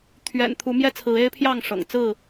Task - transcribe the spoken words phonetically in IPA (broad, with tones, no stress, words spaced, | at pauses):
t̪ʰɥɛ̰˨˩n t̪ʰu˨˦mjɛ˦t͡sʰɹ̩˨˦ e˦ɪ̯pʰjɑ˥˨ŋʂɤ̰˨˩ŋ t͡sɹ̩˥˨